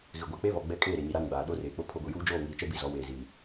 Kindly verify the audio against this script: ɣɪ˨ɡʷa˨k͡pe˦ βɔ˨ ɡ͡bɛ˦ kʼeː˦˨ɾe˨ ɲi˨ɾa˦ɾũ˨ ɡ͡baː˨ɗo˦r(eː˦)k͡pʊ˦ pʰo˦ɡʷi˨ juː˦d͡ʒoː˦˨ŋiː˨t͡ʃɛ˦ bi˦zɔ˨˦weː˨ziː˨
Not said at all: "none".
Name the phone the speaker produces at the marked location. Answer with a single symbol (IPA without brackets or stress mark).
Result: eː˨